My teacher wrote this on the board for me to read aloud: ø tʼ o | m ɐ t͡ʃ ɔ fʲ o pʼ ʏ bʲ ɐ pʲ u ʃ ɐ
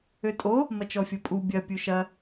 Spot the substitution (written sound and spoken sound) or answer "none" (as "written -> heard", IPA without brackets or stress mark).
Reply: ʏ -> u